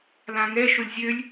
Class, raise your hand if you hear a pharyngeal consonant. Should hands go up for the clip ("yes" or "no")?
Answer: no